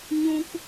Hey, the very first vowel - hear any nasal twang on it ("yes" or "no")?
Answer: yes